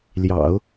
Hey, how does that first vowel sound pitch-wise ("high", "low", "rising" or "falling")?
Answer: low